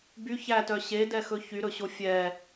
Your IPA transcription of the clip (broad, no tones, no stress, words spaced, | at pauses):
by çætœ ɕedɛxɵ çyɾɵɕo fʲɛ